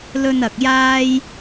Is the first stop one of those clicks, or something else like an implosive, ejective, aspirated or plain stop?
plain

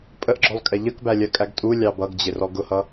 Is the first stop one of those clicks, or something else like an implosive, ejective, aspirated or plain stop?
ejective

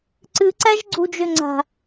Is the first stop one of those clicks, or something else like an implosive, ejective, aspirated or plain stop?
click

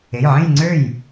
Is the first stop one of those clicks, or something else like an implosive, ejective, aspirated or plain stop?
click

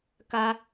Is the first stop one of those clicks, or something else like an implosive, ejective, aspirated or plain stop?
plain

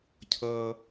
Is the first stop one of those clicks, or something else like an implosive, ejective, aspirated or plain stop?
aspirated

